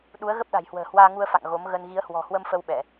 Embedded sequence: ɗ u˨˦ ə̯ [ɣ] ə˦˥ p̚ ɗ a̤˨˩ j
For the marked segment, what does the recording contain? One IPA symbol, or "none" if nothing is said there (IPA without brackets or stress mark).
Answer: ɣ